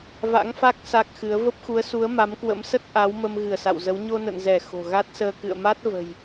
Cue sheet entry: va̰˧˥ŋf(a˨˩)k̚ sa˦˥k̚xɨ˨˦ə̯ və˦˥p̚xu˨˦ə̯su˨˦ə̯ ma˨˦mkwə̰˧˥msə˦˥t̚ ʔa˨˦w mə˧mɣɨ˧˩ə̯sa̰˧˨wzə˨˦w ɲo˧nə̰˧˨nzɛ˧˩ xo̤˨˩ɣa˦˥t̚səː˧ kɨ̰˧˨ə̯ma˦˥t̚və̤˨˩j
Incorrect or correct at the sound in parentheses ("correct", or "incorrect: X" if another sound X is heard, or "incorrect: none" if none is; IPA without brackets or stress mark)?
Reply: incorrect: a˦˥